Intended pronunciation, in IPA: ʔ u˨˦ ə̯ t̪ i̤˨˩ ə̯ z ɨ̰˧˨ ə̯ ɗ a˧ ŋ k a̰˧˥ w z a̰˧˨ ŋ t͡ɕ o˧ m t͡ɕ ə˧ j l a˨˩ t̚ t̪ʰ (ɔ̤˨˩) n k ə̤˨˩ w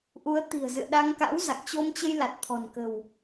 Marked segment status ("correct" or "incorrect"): correct